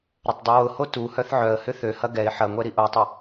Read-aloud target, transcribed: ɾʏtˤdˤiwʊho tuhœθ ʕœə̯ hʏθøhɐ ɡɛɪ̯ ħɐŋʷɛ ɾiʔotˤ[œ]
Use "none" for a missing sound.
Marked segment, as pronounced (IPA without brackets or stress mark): ə